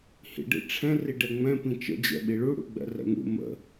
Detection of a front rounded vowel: absent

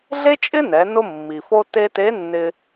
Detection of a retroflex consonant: absent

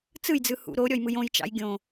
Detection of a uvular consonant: absent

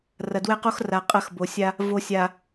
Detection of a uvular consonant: present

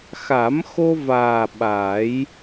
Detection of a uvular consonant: absent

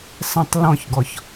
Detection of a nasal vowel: present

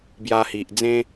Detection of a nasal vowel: present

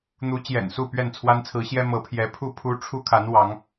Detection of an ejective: absent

